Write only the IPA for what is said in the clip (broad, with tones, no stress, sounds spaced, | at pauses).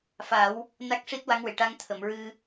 f a˨˩˦ w | n a˦˥ k̚ ʂ i˦˥ t̚ w a˧˥ ŋ w e˨˩ ʈ a˧ ŋ t̪ʰ ə˨˩˨ m ɹ ɨ˧